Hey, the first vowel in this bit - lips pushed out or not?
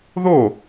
yes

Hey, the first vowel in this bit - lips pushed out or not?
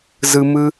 no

